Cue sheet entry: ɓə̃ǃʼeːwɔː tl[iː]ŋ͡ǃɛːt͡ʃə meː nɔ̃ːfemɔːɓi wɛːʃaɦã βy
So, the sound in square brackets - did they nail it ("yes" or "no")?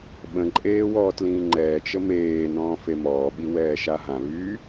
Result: no